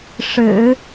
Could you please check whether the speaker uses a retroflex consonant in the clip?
yes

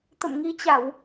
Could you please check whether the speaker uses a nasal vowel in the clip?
no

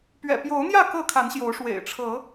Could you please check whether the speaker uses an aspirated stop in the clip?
yes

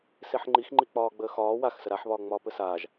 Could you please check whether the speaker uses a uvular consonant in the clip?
no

